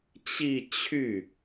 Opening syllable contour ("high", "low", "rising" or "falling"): falling